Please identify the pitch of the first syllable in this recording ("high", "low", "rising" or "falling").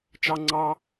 high